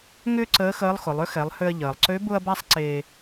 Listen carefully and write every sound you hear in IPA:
ŋ ʏː˥ ǀ əː˧˥ x əː˧˥ lˠ x ʊ˩˧ lˠ ʏ˧˥ x ɛ˩˧ lˠ h ʏ˧ ɐ̯ ʎ əː˩ lˠ ǀ ø˧˥ b ʊ˥ ɐ̯ b a˥ sˤ ǀ e˧

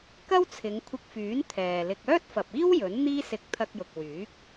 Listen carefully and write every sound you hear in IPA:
k ɐ˥ w t͡sʰ ɪ˨˧ ŋ kʷʰ ɪ˧ k̚ f yː˨˥ n t̪ʰ ɛː˨ l ɪ˧ k̚ œː˥ t̚ f ɐ˨ p̚ iː˥ w j ɵ˨˥ n n̪ iː˥ s ɪ˧ k̚ t̪ʰ ɐ˧ k̚ j ʊ˨ k̚ w yː˨˥ k̚

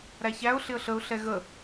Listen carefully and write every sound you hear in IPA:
ɾ æ ç æ ʊ̯ ɬ ɪ ə̯ ɬ ə ʊ̯ ɬ ɛ ɣ ə

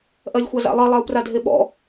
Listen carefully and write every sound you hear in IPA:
ʔ ɜ lʲ xʷ a z a̰ lˠ ɜ lˠ æ u̯ p r a dʱ e ɓ ɔ̰

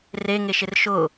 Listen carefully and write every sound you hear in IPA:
r e ŋ e ʃ ɪ r ʃ ʊ

